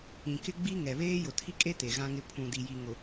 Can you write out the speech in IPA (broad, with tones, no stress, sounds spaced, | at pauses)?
ĩ˨ k ɪ˦ ɡ͡b i˦ ŋ ɛ˨ β eː˦ j ʊ˨ tʰ i˦ kʼ e˦ t e˨ ɣ ã˦ ŋ ɪ˦ pʰ ũ˨ d i˨ j i˨ ŋ ʊ˨